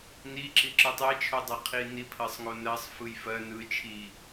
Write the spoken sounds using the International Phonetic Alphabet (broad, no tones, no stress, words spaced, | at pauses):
niǁi ǁɯtˤet͡ʃʰodˤɜ qʰinipʰɜsˤŋo nɜsˤ fɯjfɜ nɯ t͡ʃʰi